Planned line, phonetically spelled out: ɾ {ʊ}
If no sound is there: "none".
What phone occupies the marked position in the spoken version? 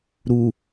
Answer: u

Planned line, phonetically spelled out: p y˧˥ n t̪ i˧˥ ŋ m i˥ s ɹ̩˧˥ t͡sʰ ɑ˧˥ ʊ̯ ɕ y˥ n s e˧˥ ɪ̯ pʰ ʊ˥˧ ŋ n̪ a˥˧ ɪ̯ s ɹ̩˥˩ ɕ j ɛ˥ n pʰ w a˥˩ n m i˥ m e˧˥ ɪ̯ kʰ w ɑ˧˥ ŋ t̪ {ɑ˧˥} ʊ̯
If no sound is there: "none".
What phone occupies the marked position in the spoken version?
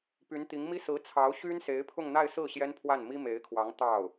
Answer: ɑ˥˩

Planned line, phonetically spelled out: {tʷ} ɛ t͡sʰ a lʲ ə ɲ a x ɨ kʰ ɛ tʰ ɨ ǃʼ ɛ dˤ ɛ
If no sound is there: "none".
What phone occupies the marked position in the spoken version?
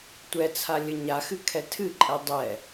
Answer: tʷ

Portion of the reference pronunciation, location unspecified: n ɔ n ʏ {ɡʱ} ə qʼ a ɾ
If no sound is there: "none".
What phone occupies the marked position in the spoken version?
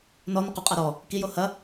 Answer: q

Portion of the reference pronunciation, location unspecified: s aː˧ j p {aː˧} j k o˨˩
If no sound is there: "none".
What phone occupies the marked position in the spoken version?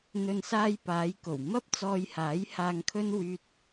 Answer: aː˨˧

